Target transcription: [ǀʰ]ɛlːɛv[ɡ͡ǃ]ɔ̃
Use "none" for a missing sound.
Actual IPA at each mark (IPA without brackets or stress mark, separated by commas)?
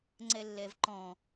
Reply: ŋ͡ǀ, ǃ